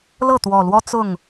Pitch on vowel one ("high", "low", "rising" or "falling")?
falling